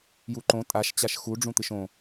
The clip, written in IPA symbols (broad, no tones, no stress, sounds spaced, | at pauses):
j u ǃ õ tʼ a ʃ t͡ɕ a ʃ x u ɖ͡ʐ ũ t̪ ɨ ʃ õ